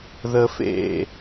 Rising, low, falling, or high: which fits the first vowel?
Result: high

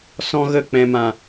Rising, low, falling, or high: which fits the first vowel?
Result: high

